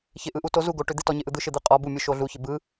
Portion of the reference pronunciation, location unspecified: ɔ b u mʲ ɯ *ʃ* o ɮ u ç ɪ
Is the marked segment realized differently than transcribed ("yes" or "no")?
no